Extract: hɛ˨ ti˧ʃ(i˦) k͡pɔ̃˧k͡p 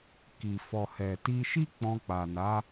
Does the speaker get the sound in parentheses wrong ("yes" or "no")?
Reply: no